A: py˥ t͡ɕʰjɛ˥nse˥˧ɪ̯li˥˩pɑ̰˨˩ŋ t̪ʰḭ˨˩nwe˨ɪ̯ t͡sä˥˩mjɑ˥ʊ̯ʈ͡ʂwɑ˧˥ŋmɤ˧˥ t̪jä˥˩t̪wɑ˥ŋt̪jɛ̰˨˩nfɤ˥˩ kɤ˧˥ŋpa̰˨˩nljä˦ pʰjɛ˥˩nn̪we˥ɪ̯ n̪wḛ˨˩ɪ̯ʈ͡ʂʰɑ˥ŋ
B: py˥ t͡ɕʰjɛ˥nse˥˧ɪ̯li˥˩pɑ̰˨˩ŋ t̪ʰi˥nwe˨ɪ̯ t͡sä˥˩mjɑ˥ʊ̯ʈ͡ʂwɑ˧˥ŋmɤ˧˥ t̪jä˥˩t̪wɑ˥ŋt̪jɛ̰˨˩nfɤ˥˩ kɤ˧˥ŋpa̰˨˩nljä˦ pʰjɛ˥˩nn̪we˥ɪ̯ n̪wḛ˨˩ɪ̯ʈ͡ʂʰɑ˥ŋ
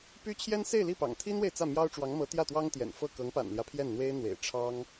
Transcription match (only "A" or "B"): B